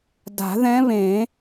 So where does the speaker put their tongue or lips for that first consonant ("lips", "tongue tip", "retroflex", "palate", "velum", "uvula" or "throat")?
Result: tongue tip